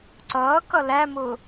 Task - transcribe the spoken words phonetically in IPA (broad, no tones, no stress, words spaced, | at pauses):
ǀʌːkʌ læmʊ